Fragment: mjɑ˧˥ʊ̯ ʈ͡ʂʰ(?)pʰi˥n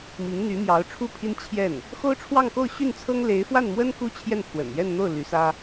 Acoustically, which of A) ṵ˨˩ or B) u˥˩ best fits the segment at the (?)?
B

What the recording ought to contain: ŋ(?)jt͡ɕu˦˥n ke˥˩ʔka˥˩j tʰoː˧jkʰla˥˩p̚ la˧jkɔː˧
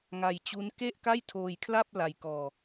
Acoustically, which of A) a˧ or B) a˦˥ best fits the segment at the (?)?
A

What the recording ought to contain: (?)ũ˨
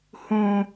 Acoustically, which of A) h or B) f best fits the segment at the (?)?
A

